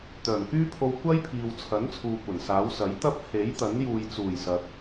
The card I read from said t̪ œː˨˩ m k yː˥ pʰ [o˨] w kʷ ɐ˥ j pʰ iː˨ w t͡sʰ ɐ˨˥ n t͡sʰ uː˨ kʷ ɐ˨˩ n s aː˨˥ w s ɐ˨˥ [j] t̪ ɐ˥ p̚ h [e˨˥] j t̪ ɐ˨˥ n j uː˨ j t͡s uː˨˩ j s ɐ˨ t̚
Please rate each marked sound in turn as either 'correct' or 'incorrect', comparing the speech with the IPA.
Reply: incorrect, correct, correct

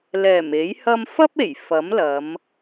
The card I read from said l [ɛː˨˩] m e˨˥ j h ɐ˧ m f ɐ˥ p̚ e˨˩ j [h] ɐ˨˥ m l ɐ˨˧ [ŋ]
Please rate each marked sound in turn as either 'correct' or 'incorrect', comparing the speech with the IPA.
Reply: correct, incorrect, incorrect

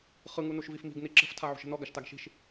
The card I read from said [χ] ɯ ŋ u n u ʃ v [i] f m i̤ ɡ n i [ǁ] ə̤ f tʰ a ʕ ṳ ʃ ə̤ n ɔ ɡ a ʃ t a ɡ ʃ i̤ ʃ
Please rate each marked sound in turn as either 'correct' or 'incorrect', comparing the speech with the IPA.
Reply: correct, correct, correct

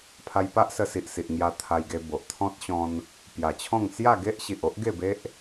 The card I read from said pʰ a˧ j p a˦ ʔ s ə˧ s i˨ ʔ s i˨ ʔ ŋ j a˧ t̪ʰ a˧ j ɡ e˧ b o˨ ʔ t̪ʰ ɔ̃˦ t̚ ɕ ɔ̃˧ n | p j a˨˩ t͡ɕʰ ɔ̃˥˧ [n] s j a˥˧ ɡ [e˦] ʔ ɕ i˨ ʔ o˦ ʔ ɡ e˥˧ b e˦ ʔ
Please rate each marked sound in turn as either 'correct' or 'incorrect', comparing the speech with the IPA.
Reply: incorrect, correct

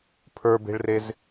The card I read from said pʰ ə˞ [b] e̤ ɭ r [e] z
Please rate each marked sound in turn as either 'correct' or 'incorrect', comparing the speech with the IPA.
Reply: correct, correct

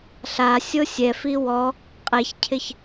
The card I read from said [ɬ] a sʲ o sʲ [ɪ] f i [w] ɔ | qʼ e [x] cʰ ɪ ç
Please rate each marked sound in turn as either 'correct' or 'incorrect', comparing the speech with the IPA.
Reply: correct, incorrect, correct, incorrect

